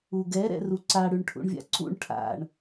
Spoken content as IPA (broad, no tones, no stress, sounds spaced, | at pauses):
u ɡ ɛ ɾ ɛ̰ r u ǀ a ɽ ʉ ɳ ʈʰ ṵ ɳ vʲ a̰ ǀ ṵ ɳ ʈʰ a̰ ɳ